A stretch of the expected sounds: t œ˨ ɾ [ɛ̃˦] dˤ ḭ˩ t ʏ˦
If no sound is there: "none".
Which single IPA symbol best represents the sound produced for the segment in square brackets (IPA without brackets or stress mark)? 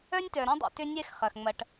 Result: ɛ̃˦